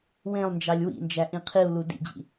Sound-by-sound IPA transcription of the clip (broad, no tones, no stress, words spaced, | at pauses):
wẽlˠnd͡ʒɑlʲ wḭnd͡ʒæ ʔĩqʰiu̯lu dḭd͡ʑḭ